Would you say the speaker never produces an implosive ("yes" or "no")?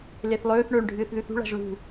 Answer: yes